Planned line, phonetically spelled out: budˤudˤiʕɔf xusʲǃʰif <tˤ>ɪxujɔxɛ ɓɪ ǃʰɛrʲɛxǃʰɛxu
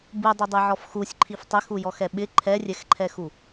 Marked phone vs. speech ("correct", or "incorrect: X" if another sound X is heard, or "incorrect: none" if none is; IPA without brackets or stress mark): correct